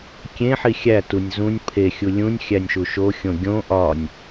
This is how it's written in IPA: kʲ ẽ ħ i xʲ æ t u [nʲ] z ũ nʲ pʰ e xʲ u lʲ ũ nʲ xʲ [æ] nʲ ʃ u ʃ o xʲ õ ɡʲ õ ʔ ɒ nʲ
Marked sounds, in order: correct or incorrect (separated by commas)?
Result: correct, correct